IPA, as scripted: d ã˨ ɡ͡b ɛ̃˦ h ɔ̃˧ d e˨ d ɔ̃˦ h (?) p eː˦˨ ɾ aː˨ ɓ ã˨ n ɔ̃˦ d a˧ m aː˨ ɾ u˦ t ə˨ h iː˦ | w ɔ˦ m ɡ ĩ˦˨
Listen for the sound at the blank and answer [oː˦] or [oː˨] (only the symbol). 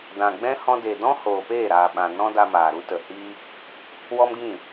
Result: oː˨